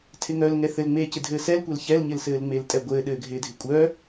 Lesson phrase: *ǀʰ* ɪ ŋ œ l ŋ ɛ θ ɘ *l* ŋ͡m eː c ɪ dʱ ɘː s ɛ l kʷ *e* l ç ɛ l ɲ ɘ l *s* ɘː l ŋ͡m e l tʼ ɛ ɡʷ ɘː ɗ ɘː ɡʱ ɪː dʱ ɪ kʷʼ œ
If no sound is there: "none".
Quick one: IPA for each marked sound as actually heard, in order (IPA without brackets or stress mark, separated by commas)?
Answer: tʰ, l, ɛ, s